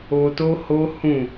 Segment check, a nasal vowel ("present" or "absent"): present